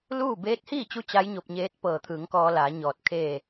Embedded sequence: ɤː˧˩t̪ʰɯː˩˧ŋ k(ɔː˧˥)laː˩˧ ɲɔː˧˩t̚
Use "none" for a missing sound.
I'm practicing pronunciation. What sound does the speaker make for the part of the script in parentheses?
ɔː˧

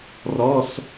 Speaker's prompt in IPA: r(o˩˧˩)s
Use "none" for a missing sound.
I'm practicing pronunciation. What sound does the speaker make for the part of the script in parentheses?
ɔ˩˧˩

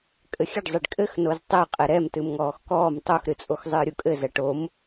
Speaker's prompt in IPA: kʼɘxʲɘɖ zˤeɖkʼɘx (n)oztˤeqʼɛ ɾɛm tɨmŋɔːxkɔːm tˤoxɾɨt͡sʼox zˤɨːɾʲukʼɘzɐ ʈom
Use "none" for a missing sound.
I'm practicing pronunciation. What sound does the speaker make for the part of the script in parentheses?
n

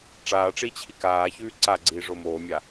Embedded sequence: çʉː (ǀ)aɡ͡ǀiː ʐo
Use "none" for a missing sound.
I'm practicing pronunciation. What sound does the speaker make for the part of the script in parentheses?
ǀ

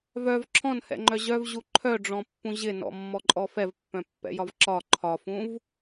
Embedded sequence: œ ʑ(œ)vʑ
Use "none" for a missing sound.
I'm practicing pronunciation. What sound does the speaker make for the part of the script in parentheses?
œ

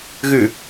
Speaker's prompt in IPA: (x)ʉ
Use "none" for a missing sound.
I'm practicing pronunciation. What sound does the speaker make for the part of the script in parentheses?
ɣ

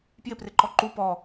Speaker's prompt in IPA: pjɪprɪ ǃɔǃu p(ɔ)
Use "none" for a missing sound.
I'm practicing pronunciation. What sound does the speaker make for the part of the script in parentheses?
ɔ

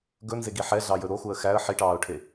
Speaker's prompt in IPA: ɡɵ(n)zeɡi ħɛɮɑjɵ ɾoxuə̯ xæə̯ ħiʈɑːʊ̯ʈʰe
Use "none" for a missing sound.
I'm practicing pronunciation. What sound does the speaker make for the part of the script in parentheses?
n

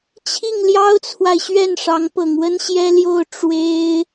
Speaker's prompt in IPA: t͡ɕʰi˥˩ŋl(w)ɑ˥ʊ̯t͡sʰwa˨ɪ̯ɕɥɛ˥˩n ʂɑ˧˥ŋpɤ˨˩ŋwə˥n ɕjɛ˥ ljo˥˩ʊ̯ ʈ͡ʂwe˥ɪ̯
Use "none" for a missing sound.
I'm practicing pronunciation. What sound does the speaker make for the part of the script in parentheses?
j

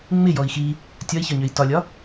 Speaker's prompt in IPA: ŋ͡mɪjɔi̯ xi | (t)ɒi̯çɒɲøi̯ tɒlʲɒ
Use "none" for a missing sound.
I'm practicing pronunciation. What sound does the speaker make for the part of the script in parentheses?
tʲ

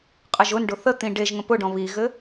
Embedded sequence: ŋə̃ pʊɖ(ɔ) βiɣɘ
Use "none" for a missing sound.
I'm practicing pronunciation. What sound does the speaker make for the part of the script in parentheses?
ɔ̃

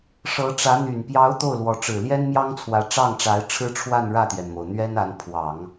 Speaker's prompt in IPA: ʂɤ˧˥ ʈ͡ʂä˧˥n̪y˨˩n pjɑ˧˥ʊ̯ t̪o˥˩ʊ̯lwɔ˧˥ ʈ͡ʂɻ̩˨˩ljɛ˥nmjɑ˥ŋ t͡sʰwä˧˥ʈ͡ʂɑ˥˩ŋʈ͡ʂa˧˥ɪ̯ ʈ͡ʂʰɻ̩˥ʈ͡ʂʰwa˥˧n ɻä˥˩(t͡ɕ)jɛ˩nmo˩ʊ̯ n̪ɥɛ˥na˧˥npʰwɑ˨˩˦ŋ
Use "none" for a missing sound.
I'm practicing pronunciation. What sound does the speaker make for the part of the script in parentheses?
t̪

